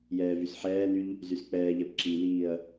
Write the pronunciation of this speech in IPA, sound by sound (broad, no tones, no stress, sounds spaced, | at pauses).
j ɛː v y s ħ ɛː n y ʎ | z y s k͡p ɛː ʎ ɛ p ǁ i l iː ɐ̯